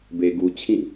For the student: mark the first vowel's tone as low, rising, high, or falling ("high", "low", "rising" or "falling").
low